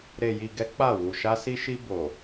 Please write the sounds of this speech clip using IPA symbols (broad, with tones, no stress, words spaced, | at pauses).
ɾe˨ji˨ɡɛ˨˦ k͡pa˦˨ wu˨ʃa˧si˧ʃi˧ bo˨